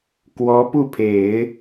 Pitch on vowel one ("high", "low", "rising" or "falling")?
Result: rising